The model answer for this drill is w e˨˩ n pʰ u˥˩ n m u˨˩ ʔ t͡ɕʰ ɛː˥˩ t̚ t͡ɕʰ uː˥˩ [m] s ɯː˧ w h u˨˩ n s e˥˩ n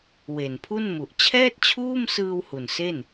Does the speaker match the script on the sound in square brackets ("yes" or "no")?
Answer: yes